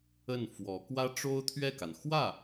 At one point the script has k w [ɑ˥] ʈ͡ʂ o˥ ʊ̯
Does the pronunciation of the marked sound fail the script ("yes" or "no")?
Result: yes